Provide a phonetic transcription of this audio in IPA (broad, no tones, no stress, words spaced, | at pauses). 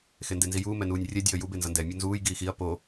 xendenzijuː mɛnuːnʲrʲɛ dʲʌːjub enzʌndɛ mʲunzuːj ɡiːxiɐ̯ po